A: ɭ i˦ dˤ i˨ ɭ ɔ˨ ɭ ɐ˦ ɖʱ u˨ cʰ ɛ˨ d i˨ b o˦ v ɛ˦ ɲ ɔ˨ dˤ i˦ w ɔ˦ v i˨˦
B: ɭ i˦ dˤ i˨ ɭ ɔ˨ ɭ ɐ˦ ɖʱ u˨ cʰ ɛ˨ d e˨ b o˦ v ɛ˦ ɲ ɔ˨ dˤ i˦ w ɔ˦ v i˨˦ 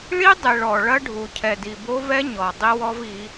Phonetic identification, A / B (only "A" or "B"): A